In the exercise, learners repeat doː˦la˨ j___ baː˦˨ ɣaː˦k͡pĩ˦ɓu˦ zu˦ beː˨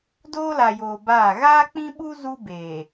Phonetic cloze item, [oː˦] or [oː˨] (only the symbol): oː˨